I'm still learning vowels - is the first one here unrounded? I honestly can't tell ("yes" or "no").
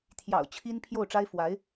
yes